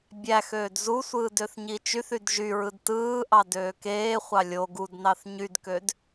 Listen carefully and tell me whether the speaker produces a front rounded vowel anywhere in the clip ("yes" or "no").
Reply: yes